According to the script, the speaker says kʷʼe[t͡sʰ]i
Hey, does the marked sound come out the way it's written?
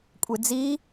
no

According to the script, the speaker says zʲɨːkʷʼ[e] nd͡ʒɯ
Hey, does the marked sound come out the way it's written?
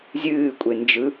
yes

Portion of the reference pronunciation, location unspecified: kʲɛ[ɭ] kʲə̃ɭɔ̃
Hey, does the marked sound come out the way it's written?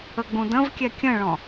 no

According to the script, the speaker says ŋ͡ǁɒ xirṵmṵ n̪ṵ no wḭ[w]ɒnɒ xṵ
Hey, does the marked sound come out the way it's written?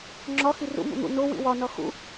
yes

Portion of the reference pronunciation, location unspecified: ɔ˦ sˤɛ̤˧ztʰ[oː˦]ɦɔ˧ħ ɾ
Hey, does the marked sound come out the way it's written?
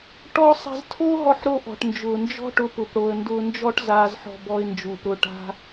yes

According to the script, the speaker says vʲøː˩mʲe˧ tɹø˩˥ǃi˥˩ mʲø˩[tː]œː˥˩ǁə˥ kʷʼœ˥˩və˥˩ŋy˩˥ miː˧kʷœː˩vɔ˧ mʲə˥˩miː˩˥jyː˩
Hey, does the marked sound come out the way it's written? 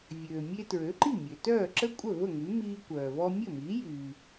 no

